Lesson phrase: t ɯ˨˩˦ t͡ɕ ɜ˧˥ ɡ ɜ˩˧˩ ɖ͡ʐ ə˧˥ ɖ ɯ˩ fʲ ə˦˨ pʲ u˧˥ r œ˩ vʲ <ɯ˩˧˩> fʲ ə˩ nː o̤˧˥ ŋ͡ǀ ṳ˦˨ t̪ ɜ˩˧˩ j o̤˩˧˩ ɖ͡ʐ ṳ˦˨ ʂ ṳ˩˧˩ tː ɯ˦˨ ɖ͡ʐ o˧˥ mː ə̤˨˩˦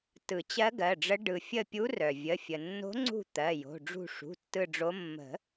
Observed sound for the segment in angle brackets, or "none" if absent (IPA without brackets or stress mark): ə˩˧˩